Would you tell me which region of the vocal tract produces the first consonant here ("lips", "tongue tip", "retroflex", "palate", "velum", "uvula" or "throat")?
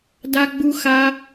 tongue tip